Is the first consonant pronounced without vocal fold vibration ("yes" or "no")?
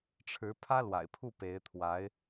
yes